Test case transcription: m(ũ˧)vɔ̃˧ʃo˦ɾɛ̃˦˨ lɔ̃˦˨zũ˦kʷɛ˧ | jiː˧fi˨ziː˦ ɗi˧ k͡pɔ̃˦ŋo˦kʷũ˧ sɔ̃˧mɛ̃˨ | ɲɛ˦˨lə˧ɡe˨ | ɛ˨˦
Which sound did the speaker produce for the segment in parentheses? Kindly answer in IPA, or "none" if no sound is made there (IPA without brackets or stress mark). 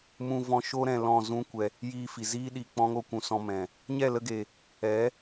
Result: ũ˧